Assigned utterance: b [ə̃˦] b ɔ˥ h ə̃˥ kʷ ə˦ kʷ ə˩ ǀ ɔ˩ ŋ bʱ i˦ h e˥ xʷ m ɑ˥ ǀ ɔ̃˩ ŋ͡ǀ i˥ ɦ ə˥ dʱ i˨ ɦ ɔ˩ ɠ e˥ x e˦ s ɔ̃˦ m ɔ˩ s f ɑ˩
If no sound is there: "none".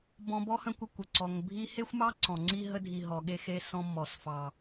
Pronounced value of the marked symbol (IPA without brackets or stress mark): ɔ̃˦